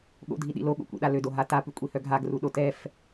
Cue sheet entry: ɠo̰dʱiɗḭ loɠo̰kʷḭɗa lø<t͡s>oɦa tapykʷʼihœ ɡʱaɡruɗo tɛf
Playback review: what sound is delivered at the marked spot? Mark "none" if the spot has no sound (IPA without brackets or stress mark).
d